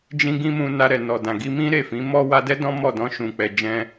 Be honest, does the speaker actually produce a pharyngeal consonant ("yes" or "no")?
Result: no